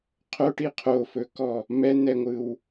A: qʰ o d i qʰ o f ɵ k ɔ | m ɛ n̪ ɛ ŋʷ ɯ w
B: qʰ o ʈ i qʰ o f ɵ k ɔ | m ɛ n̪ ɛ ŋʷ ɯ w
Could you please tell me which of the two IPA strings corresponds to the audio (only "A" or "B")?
B